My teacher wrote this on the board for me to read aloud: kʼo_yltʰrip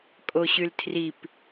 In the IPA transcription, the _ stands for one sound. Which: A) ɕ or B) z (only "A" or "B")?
A